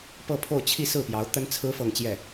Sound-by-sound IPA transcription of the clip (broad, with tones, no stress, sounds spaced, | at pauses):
p ɤ˥˧ pʰ o˥˧ ʊ̯ t͡ɕʰ i˥˧ s ɹ̩˥˩ p j ɑ˧˥ ʊ̯ t̪ ə˥ n t͡sʰ ɹ̩˥ f ɤ˥˧ ŋ t͡ɕ j ɛ˥˩